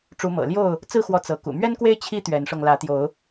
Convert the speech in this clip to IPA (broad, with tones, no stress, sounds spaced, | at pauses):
ʈ͡ʂ u˨˦ m ɤ̰˨˩ l j o˥˨ ʊ̯ | t͡s ɹ̩˥˨ x w ɔ˨˦ t͡s ɤ˨˦ k ṵ˨˩ m ɥ ɛ˦ n k w e˦ ɪ̯ t͡ɕʰ i˦ t̪ ɥ ɛ˨˦ n ʂ ɤ˧ ŋ l ä˨˦ t̪ j o˨˦ ʊ̯